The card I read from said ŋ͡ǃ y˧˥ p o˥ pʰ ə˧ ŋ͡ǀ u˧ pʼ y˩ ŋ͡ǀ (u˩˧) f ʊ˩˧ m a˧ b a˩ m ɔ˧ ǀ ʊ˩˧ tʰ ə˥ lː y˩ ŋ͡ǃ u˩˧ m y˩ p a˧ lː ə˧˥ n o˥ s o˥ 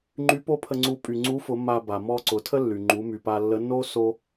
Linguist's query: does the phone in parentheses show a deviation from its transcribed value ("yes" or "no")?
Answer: yes